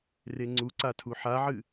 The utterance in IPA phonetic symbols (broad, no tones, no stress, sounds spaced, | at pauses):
r e ŋ͡ǀ u ǀ a tʰ u ħ a ʕ ɨ